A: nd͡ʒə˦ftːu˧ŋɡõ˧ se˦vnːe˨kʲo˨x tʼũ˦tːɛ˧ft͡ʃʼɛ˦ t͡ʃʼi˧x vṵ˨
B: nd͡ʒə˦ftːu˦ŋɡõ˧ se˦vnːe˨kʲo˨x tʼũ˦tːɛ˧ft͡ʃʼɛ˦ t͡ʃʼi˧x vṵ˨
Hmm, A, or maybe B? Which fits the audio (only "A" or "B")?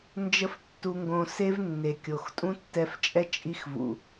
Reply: A